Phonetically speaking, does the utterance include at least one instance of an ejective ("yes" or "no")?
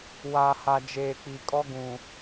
yes